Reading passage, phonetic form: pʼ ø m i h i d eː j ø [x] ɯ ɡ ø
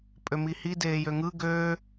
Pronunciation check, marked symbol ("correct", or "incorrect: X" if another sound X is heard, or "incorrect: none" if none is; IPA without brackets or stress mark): incorrect: ŋ